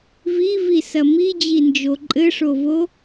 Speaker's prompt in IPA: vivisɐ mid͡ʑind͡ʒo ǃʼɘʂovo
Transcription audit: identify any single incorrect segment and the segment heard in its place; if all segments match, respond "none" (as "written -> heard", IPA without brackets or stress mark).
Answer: none